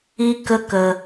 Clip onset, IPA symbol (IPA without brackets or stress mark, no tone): i